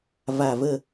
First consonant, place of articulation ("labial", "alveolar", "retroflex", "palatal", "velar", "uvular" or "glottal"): labial